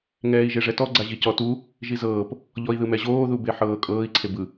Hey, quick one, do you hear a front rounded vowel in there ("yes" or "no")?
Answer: no